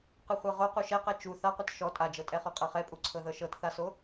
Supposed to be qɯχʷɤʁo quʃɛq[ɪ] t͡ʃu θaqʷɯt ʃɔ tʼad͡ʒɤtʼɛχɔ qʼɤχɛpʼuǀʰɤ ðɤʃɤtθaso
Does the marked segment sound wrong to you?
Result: yes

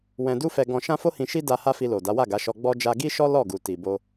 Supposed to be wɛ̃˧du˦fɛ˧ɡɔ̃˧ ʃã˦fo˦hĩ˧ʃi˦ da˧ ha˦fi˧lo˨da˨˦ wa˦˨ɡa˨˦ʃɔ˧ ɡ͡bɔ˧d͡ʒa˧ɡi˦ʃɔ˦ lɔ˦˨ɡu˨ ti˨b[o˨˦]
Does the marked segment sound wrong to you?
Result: yes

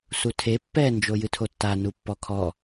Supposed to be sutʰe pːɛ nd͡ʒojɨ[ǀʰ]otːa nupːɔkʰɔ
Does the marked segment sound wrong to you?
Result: yes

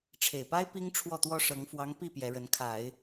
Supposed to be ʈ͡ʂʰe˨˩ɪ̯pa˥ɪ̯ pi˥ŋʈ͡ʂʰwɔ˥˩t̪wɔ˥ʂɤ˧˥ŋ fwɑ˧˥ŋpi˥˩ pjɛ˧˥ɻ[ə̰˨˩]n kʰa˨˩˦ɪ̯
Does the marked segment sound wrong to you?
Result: yes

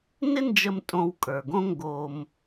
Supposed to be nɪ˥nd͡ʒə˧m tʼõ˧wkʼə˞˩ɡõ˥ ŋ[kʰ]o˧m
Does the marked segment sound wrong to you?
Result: yes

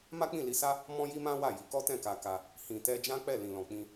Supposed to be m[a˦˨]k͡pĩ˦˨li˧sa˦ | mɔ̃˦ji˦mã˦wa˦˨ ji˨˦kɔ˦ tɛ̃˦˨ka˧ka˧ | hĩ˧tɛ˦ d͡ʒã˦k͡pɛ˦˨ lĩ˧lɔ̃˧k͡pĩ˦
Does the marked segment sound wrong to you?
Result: yes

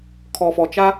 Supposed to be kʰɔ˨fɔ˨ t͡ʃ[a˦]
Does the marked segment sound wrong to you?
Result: no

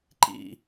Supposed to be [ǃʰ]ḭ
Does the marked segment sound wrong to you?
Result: yes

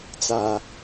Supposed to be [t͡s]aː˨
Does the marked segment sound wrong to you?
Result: no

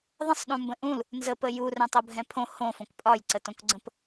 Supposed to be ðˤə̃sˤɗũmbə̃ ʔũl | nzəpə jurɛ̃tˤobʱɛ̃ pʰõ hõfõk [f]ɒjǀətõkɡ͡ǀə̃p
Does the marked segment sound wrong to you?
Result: yes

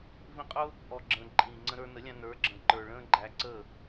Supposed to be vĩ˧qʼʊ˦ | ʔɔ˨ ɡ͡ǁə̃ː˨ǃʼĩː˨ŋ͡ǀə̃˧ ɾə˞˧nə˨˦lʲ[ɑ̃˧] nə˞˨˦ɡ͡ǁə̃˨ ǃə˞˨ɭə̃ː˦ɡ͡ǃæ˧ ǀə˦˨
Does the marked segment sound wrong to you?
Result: no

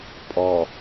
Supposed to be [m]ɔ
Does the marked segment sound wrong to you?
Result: yes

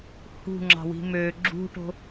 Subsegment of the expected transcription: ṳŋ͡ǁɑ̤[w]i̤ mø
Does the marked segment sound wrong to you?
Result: no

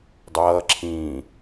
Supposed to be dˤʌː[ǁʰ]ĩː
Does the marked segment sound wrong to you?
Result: no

